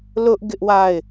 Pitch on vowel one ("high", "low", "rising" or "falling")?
high